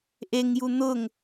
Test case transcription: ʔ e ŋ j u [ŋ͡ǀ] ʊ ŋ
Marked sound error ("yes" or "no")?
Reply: yes